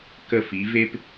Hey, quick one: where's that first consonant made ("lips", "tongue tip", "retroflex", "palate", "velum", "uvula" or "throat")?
velum